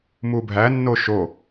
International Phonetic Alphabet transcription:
mubʱænːo ʃo

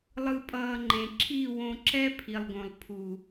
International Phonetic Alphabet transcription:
lˠɯ˧pʼʌː˧ŋ͡ǃẽ˨ ǁʰi˦˨wõ˧ǁɛ˦ pʰi˨lˠɡõ˨lˠ pʰu˨

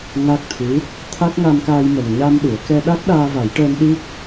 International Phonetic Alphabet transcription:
ŋa˦˥k̚t̪ʰɨ˧˥ | t̪ʰa˦˥k̚ŋa˧mkaː˧j mə˨˩ŋɲa˧mɗɨ˨˩˨ə̯ kɛ˧ɗa˦˥k̚ ɗaː˧va˨˩˦jʈəː˧n ɗi˦˥k̚

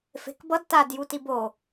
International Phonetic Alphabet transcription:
fe̤kbʌd tad jutibo

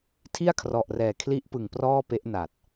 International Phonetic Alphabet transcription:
tʰi˥˩a̯kʰrɔ˨˩ʔrɛː˨˩ kʰli˦˥ʔpɯ˨˩ŋ prɔː˥˩pe˦˥ʔna˨˩t̚

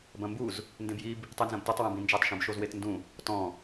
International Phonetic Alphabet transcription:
bɐ̃mbuz | ndẽbjib | tˤenzɐ̃btɔtˤ wɐ̃bĩnd͡ʒatˤ ʃũbʃozwetndũ | tɔ̃

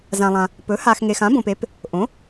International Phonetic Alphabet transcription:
zã˨lˠã˨ | pɵ˩˥ha˨x ŋe˨xã˩˥bõ˨pe˩˥p | ʔõ˩˥

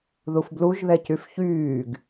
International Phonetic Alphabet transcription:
ðufbluʒðɛcyf çyːɡ

